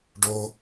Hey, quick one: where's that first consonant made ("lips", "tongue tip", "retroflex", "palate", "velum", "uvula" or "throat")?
retroflex